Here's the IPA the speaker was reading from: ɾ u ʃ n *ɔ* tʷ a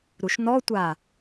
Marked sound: correct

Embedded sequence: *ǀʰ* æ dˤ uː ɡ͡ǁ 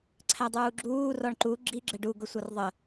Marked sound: correct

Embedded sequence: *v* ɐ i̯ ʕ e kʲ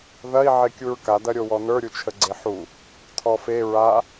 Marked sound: incorrect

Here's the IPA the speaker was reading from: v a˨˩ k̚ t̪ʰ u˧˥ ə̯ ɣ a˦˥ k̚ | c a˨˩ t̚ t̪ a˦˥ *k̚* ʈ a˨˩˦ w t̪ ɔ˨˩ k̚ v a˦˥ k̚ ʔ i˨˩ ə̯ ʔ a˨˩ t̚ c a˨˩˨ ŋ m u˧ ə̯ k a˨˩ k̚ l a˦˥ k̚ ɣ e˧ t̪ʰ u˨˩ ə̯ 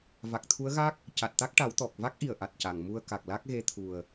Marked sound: correct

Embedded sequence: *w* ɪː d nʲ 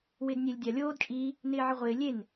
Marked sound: correct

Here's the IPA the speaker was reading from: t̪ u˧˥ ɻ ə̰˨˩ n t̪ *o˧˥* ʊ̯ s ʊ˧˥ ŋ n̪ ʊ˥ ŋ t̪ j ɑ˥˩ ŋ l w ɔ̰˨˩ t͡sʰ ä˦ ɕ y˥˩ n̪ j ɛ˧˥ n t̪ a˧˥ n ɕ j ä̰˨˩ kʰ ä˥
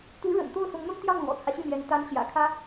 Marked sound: incorrect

